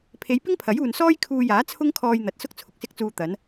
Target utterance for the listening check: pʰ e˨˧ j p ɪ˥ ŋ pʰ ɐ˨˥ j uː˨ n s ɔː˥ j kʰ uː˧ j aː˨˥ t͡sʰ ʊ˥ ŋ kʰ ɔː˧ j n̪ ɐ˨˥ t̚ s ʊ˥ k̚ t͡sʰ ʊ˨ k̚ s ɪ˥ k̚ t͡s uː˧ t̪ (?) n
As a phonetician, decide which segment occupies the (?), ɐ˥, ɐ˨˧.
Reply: ɐ˨˧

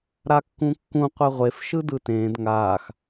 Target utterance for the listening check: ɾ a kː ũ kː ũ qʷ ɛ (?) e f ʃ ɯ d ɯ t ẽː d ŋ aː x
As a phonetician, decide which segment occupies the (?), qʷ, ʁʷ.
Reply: ʁʷ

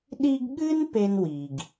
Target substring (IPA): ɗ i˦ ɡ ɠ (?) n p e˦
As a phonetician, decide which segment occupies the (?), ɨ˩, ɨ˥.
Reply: ɨ˥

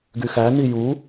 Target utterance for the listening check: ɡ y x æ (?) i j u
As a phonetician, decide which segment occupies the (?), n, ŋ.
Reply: n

